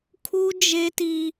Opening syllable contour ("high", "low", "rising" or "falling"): high